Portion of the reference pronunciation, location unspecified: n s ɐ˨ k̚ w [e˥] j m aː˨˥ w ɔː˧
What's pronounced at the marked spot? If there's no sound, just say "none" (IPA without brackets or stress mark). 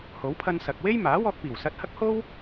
e˥